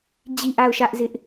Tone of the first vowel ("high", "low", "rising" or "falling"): falling